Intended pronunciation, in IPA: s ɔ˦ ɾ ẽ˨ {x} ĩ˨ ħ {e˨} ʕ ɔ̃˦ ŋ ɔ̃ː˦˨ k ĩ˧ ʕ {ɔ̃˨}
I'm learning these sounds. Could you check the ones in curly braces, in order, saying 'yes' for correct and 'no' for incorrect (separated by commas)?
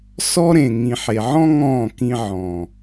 no, yes, yes